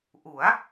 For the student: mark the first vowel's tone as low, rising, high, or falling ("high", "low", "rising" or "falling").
rising